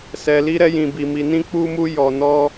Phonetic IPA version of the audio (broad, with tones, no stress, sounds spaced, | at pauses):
s ɛ˧ l i˧ ɾ ɛ˧ j ĩ˧ b i˧ m i˧ n ĩ˦ k͡p u˦ m u˦ j ɔ˧ n ɔ˦